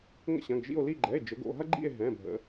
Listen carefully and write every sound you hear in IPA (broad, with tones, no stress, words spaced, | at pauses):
ŋə̰˦˨ɕɐ̃˩˧˩ɡʒḭ˦˨o̯li˦˨ ɡ͡ǃɛ˩˧˩e̯d͡ʒə˩˧ɡo̰˩˧˩ɦɐ˦ ɡ͡ǃḭ˦˨e̯ ɦɛ̃˩˧˩bʱə̰˩˧